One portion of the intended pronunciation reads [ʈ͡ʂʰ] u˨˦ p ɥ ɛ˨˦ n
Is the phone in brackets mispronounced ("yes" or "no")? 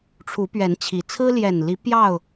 no